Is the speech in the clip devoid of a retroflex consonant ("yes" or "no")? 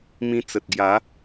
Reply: yes